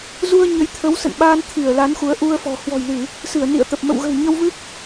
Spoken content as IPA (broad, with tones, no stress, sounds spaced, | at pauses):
z u˧ ə̯ ɲ ə˨˦ j t̪ʰ ə˨˦ w s ə̰˧˨ n ɓ aː˧ n t̪ʰ i˧˩ ə̯ l a˨˦ n x u˨˦ ə̯ ʔ u˧ ə̯ f ɔ̤˨˩ h w ɔ̤˨˩ j l ɨ˧˩˨ | s ɨ˧˩ ə̯ n ḭ˧˨ ə̯ t̪ ə˨˩ p̚ m ə̰˧˨ w ɣ ə̤˨˩ w ɲ ə˧ w v ɨ˦˥ k̚